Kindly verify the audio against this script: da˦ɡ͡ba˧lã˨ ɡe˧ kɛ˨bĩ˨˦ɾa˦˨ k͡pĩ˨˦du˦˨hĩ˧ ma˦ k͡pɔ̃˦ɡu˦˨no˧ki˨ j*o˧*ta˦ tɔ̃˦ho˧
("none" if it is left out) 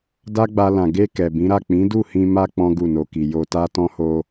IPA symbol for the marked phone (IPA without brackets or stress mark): o˧